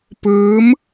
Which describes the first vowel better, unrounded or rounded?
unrounded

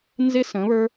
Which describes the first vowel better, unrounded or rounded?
unrounded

